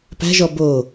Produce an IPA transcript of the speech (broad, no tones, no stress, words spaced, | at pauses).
pæ̤ʒɔ bo